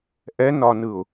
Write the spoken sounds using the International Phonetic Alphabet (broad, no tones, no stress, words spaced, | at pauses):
ʔɛnɒnɯʊ̯